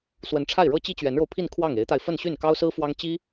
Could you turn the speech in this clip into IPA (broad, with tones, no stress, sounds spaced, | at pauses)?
s w ə˧˥ n ʈ͡ʂʰ a˥˩ ɪ̯ ɻ ɤ˥ t͡ɕ i˥ t͡ɕ ɥ ɛ˧˥ n ɻ o˧ ʊ̯ pʰ i˥˧ n kʰ w ɑ˥˩ ŋ e˧˥ ɪ̯ t̪ a˧ ɪ̯ f ə˥˧ n ɕ y˥˩ n k ɑ˥ ʊ̯ s ɹ̩˥ f w ɑ˥ ŋ t͡ɕ i˥